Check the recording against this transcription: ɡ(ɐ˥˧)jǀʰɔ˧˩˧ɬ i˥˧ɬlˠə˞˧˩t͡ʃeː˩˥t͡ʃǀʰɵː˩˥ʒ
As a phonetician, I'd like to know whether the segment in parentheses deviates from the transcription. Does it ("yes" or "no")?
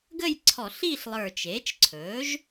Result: yes